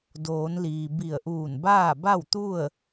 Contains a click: no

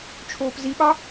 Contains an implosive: yes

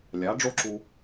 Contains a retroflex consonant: yes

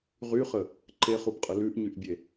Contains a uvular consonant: yes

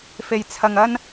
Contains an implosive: no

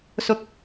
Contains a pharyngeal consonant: no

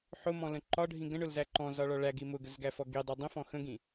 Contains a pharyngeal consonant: yes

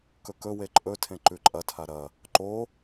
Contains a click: yes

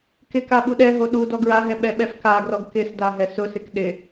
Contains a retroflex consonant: no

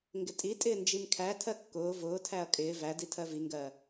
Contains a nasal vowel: no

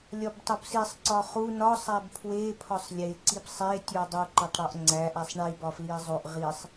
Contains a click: yes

